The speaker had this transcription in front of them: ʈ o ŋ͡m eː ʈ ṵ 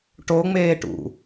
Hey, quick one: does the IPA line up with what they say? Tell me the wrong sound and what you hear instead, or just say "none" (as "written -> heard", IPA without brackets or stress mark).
none